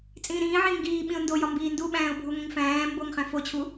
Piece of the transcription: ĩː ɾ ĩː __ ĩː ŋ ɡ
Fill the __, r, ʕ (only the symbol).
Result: ʕ